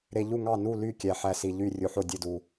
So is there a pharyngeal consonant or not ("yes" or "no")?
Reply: yes